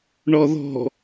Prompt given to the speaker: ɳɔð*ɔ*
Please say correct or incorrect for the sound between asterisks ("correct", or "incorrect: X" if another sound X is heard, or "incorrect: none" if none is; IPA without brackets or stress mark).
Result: incorrect: ɔ̤